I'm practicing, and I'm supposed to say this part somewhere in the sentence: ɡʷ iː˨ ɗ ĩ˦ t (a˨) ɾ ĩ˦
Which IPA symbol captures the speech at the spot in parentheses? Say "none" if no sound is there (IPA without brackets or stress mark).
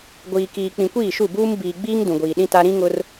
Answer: a˦